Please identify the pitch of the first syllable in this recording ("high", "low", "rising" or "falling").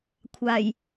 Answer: low